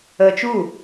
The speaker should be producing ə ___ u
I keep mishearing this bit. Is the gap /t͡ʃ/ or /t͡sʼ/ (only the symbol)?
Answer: t͡ʃ